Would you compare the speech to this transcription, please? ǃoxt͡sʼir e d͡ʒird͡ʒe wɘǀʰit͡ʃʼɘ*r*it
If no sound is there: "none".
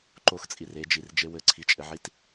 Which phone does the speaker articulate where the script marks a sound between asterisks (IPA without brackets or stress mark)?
ʕ